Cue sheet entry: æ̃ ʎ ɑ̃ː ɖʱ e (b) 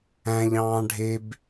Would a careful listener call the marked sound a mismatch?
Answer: no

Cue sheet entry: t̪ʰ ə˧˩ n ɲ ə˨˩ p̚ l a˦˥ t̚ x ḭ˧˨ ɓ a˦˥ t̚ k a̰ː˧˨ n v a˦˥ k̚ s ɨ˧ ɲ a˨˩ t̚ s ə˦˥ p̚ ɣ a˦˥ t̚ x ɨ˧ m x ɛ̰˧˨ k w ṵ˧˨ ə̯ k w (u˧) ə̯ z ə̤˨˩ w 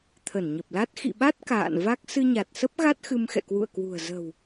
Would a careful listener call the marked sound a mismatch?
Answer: yes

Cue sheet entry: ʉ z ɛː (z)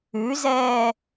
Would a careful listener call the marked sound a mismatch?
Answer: yes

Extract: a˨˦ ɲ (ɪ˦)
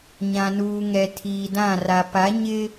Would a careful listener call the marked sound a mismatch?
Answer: no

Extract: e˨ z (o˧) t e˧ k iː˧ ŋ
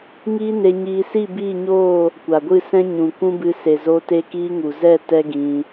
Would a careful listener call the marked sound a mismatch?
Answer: no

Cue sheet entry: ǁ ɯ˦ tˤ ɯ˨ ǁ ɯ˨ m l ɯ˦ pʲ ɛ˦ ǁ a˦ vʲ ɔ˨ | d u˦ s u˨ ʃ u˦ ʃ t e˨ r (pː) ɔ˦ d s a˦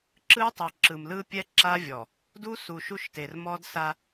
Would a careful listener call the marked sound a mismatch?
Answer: yes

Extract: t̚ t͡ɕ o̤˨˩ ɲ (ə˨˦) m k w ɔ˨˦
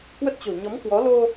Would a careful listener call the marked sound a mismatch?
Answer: yes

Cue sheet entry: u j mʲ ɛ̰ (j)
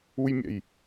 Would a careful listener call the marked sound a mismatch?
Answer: no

